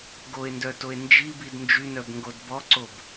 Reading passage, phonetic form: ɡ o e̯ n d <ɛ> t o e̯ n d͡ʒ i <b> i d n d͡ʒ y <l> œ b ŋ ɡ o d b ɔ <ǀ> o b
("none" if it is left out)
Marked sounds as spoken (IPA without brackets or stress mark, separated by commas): œ, b, n, ǀ